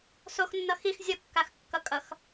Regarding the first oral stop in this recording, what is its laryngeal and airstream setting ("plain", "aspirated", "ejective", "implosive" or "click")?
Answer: plain